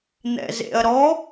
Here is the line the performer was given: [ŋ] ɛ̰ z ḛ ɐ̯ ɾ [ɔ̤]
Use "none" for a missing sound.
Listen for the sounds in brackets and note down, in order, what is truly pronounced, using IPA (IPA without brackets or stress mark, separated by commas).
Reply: n̪, ɔ